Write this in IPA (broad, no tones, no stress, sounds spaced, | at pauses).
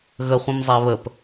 ɣ ə χʷ ĩ m zˤ æ β ə p